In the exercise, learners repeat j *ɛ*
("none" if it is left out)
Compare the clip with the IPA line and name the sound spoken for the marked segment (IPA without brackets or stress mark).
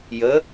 ə